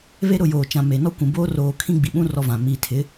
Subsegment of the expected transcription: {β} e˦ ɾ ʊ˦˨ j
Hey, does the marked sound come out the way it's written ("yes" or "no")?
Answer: yes